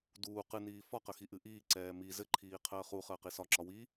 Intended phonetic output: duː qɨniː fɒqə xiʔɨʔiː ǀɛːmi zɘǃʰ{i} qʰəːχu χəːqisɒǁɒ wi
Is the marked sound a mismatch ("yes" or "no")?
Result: yes